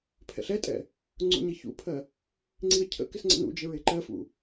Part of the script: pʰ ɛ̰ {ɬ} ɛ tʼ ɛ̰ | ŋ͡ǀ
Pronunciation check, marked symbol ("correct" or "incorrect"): correct